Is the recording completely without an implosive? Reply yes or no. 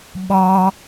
no